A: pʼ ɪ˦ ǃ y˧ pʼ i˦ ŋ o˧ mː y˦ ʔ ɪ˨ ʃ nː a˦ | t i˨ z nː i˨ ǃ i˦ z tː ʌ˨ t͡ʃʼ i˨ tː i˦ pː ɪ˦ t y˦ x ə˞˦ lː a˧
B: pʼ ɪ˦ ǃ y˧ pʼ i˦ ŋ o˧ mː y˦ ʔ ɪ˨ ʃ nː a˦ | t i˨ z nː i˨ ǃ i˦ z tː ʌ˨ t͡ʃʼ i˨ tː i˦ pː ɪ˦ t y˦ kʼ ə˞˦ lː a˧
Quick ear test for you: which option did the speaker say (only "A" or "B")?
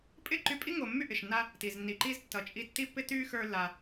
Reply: A